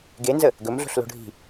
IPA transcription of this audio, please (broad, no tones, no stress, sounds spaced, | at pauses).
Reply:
ɡ e n z ə | ɡ ɵ m ɮ o̤ ɬ l o̤ ɖʱ i̤